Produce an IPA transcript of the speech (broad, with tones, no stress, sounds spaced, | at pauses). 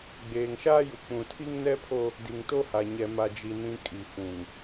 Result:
ɡ͡b eː˨ ŋ ʃ aː˦ j u˨ k͡p ũ˨ tʰ i˦ ŋ n ɛ˦ pʰ o˦ | d i˨ ŋ t o˦ h a˨ ɲ ɛ˦ m a˦ d͡ʒ i˦ n ĩ˦ kʼ i˨ f ũ˨ ŋ